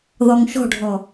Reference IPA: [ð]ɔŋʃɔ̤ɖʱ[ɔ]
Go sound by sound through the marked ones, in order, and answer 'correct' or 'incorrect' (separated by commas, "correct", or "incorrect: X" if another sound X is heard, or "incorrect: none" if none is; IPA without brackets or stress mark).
correct, correct